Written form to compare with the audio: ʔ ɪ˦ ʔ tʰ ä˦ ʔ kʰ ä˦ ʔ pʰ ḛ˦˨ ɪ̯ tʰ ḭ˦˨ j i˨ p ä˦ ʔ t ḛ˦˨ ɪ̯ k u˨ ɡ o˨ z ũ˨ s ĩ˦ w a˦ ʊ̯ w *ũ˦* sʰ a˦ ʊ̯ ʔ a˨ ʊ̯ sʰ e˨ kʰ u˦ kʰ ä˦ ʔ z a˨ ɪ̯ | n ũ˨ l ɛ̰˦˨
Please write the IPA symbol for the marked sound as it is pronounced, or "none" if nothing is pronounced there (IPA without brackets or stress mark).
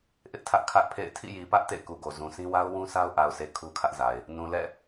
ũ˦